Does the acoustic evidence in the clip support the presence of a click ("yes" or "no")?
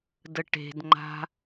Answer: yes